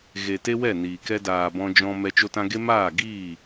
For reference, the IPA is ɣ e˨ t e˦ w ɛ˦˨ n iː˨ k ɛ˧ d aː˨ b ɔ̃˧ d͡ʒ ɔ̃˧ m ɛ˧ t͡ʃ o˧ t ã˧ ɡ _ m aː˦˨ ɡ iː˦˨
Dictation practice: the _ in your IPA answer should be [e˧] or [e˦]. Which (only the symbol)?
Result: e˦